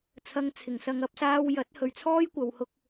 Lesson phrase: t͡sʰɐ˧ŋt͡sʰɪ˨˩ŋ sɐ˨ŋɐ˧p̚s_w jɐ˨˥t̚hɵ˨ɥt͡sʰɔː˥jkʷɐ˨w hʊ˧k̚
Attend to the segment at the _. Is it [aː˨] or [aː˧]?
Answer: aː˧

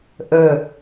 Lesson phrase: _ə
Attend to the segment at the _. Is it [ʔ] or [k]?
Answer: ʔ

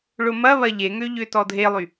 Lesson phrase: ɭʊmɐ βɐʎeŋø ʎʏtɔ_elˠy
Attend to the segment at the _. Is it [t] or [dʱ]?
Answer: dʱ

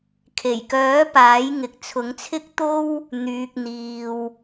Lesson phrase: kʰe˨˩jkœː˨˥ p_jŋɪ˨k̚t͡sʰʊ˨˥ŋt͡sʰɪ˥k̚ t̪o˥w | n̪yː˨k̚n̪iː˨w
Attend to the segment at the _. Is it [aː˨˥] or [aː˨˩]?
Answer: aː˨˥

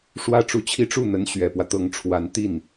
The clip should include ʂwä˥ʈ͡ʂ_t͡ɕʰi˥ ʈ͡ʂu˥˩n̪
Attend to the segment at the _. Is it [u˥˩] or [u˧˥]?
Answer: u˧˥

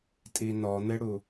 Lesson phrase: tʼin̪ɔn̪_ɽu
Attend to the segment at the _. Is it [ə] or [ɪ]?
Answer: ɪ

